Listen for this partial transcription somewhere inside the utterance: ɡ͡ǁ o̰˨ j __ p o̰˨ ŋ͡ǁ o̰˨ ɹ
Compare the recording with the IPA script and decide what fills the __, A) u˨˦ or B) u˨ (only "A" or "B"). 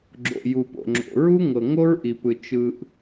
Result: B